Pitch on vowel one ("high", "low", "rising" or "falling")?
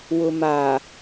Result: low